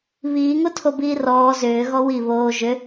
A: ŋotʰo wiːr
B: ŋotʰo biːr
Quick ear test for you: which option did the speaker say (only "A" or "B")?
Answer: B